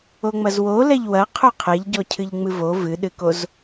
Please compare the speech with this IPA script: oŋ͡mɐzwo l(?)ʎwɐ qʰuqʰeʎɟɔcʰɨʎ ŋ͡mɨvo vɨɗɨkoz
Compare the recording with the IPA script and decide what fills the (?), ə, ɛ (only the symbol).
ɛ